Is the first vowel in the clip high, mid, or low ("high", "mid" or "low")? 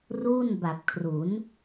high